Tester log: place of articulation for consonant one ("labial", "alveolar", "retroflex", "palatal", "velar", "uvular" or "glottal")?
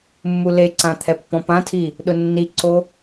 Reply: labial